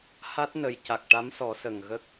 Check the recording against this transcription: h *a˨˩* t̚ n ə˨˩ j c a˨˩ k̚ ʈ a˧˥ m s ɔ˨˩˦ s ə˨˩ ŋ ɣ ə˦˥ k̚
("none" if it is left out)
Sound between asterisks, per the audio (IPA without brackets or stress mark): a˦˥